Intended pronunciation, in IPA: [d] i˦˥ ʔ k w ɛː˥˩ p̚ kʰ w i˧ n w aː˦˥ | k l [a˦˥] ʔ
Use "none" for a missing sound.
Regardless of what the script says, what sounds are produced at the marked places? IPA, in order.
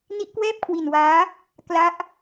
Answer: n, a˦˥

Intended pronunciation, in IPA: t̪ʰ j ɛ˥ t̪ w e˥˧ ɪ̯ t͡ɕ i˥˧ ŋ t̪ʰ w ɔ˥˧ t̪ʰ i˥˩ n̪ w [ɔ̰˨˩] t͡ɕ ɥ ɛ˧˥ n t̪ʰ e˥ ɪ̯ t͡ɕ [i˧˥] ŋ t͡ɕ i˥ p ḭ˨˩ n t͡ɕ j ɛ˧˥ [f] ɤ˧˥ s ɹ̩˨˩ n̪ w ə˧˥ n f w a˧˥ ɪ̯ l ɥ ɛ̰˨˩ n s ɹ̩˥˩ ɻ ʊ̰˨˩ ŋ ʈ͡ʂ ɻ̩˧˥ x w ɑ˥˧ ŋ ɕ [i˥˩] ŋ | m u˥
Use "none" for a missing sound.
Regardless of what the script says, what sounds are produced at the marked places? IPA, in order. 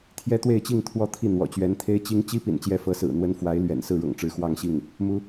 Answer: ɔ̰˨˩, i˥, f, i˥˩

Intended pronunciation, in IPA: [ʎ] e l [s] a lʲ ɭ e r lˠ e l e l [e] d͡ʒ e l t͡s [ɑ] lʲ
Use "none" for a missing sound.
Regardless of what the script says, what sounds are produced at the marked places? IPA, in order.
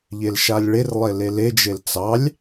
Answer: ʎ, ʃ, e, ɑ

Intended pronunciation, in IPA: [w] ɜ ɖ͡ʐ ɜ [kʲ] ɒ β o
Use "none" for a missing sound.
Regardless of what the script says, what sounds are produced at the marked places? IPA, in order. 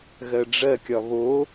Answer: ɣ, kʲ

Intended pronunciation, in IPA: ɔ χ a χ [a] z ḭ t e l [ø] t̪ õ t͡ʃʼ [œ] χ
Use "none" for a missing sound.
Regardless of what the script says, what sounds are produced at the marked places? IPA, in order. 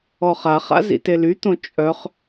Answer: a̰, y, œ

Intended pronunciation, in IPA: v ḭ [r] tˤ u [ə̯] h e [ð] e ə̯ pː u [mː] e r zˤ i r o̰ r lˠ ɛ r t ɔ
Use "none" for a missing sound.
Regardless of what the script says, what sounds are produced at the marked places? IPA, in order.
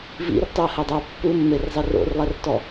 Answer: r, ə̯, dˤ, mː

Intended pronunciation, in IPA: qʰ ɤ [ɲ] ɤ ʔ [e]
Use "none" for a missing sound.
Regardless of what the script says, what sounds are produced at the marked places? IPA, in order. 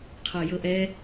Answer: j, ɛ

